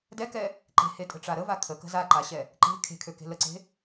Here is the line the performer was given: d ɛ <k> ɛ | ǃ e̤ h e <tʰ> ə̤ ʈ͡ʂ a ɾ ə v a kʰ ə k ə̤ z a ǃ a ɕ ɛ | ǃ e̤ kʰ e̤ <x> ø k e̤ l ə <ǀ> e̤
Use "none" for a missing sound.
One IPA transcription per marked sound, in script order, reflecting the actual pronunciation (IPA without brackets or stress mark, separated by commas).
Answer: k, tʼ, kʰ, ǀ